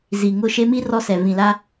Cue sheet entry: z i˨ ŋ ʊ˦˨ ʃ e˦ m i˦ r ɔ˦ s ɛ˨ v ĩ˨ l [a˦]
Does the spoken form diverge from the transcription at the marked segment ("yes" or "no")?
no